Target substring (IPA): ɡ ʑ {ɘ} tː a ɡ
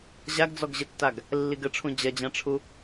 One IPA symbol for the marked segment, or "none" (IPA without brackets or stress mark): ɘ